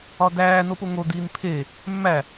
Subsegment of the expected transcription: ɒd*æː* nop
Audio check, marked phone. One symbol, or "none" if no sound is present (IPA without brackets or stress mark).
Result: æː